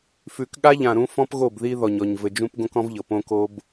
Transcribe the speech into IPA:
f ʉ˨ k ɠ a˦ ʎ ã˨ ɾ ũ˦ f ɔ̃˦ p ɣ o˦˨ b ð i˦ ð ɔ˨ ɲ ɔ˨ ɲ v ɘ˨ d͡ʒ ũ˦ p ɡ õ˦ k ɔ̃˦ v ʎ ɤ˨ p õ˦ k o˦ b

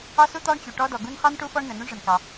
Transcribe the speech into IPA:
ɑ˥ s u˥ t̪ ɑ˥ ɳ t͡ɕ u˩ ʈ ɔ˥ d ɔ˩ ɡ u˥ n χ ɑ˥ n ʈ u˥ f ɔ˥ ɳ n ə˩ n u˥ ɳ ʐ ə˩ n k ɑ˩

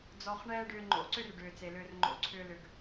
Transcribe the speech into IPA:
d͡z ɔ˧ χ ɳ ɛː˦ ɖ ʏː˧ ŋ͡ǃ o̰˨˦ ǀ ʏ˦ r ɖ ʏː˨ t͡s e˨ l ʏː˧ r ŋ͡ǃ o̰˧ ǀʰ ʏː˦ l ʏ˧ ɡ

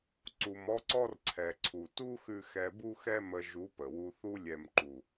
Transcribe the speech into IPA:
ǀ u˨ m ɔ˦ ǀ ɔ˦ r ǀʰ ɛ˨ ǀʰ u˨ t u˦ x ʉ˧ x ɛ˧ b u˦ x ɛ˦ m ə˧ ʒ u˨˦ p ə˨ w u˧ θ u˧ lʲ ɛ˨ m ǃ u˨

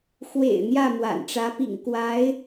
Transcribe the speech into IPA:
x w ḛ˨˩ ɪ̯ n̪ j ä˥˩ m w a̰˨˩ n ʈ͡ʂ ä˧˥ p ḭ˨˩ ŋ k w a˧˥ ɪ̯

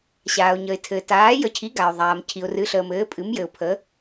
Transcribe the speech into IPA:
ɕ aː˨ ʊ̯ ɲ ə˨ ɪ̯ tʰ ɘː˨ t aː˨˥ j ə˨˥ cʰ i˨˥ ɡ a˨ ʊ̯ ðˤ aː˨ m cʰ i˨ ʊ̯ r ɨ˨˥ ɬ əː˨ m ɘː˨˥ pʼ ɨ˨˥ m j ɘ˨ ʊ̯ pʰ ə˨˥

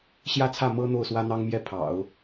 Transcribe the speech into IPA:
ɕ j ä˥˧ t͡sʰ ä˥˩ m ɤ˥ n̪ o˥˩ ʊ̯ s w ä˥ n̪ ɑ˥ ŋ m j ɛ˥˩ pʰ ɑ̰˨˩˦ ʊ̯

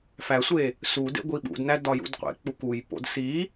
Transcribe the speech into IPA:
f æ sʷ e | s u d ḛ ɡʷ i ɓ ṵ d n æ d ɒ j ṵ d qʷ ḛ k͡p u k u j p o̰ d s i

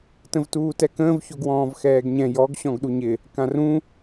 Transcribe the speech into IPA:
t ə̃ v t uː t ɛ k ə̃ː v ç o ɡ w ɔ̃ː v x ɛː ɡ ɲ ɛ̃ j ɔ ɡ ɕ ɔ̃ ɡ ɗ u ɲ ɪ | k ã r ũ

